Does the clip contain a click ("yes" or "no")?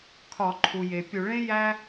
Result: yes